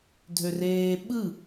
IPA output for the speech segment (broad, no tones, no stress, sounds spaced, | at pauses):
dʱ ø r eː ɓ ɯ